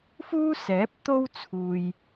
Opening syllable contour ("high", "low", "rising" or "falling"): high